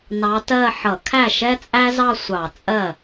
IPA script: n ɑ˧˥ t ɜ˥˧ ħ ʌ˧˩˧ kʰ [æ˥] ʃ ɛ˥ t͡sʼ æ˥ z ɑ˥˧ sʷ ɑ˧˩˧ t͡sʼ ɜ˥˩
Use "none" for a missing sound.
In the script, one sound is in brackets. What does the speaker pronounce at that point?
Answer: æ˥˩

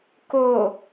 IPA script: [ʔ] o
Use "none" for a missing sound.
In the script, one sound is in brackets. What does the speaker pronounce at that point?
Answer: k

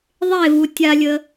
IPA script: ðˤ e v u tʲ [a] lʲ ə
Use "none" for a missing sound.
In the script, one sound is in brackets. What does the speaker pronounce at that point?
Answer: a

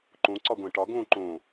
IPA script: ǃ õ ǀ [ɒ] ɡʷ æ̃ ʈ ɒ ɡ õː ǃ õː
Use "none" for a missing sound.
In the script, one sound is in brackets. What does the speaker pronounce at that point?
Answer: ɒ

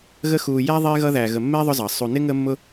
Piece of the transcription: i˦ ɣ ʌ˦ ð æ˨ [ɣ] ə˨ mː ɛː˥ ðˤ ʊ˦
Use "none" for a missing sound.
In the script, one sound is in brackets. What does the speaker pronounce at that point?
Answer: ɣ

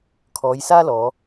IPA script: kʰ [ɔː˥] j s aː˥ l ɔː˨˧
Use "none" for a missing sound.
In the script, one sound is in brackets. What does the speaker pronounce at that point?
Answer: ɔː˨˧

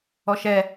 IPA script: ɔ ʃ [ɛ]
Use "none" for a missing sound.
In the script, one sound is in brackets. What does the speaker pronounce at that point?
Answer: ɛ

